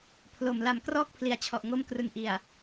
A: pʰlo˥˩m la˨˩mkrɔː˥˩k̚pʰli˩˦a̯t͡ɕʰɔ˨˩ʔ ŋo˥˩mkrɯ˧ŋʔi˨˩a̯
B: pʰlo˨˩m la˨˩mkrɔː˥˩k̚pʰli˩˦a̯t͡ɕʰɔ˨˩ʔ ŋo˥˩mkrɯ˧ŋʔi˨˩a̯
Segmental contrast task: B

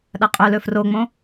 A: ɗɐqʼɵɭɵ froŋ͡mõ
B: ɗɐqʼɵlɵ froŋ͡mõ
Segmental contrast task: B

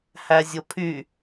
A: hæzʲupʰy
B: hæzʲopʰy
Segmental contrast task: B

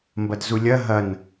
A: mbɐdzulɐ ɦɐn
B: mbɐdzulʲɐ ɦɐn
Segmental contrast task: B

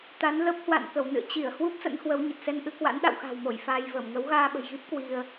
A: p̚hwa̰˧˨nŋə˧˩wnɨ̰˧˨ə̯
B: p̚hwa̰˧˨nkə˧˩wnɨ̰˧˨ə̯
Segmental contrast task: B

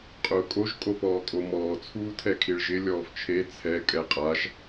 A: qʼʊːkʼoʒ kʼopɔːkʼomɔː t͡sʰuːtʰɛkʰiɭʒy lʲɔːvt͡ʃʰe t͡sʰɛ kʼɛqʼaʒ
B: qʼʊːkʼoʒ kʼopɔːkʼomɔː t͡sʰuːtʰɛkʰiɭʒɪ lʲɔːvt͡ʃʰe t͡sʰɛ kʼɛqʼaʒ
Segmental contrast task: B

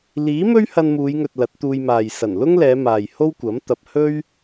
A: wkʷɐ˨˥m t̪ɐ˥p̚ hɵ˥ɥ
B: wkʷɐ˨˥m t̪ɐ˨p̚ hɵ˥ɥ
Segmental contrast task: B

